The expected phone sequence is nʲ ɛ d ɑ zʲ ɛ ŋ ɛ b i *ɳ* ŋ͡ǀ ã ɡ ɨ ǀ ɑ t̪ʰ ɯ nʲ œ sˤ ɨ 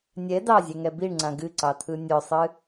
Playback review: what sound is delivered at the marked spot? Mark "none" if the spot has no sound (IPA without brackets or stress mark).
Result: ɳ